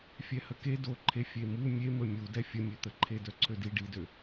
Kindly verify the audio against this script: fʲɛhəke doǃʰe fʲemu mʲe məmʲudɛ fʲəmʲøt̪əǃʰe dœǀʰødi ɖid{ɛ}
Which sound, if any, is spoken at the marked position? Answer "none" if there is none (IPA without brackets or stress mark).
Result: ø